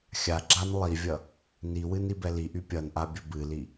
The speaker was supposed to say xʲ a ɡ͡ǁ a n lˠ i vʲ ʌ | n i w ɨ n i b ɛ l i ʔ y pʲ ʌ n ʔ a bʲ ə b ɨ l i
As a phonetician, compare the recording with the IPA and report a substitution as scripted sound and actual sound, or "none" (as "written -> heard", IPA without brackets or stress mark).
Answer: none